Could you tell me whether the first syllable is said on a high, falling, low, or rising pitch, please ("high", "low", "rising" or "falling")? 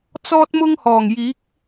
high